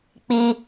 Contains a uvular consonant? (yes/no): no